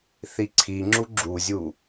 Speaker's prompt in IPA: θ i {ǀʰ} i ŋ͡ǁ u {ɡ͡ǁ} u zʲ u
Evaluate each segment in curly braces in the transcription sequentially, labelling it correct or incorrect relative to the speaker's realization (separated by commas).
correct, correct